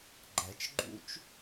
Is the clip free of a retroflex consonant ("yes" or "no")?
yes